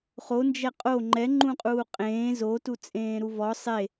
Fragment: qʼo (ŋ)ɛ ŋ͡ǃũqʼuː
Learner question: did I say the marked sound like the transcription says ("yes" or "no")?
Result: no